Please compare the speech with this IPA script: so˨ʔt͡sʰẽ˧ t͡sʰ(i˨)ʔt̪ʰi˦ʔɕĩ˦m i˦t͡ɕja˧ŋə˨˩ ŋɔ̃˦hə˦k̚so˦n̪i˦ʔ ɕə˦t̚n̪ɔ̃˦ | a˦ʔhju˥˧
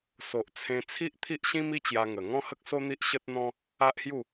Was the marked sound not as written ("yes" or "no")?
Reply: yes